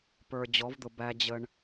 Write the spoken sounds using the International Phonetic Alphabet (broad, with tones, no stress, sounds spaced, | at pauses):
p ə˞˨ d͡ʑ ɔ˨˦ v d̪ ʊ˨ b æ˦ d͡ʑ ə˦ ɳ